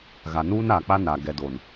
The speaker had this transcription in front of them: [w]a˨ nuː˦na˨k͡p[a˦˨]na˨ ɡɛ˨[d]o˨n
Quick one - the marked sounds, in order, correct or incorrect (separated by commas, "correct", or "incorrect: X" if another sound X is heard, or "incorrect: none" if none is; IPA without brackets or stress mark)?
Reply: incorrect: ɣ, incorrect: a˦, correct